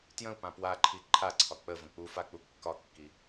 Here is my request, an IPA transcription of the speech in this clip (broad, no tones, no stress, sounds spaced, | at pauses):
t j ə̃ u̯ p ã p w a ǃʰ i ǃʰ a ǀʰ ɒ k͡p ə v ə̃ k͡p u f a k͡p u kː ɒ kː i